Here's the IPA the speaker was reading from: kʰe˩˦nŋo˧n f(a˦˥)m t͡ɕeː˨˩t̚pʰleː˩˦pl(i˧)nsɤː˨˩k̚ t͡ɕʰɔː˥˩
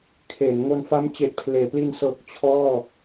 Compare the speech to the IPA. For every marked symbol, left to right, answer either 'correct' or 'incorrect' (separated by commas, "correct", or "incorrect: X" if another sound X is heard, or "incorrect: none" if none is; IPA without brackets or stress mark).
correct, correct